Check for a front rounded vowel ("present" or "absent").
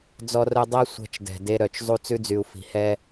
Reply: present